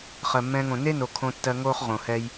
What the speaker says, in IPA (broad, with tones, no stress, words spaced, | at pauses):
χɜ˨mːɛ̃ː˧ŋõ˨ ne˦no˨ kʰõ˧tːɜ˧ŋoː˦χ ʁõ˨hɛ˧j